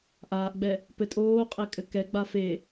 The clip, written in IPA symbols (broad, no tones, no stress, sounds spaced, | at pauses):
ʔ aː ʔ ɡ͡b ɛ | p ɘ tʼ oː qʼ e kʼ ɘ k ɛ ɡ͡b a f e